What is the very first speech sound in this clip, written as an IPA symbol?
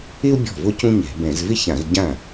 ɪ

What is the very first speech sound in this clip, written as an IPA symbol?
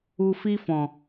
u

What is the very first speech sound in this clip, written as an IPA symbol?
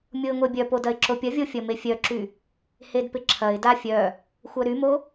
mʲ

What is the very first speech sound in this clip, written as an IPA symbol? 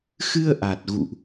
x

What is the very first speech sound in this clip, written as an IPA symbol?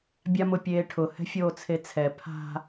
bʲ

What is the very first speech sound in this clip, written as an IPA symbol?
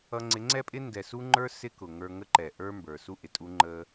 ʌ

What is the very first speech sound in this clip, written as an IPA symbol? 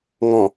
ŋ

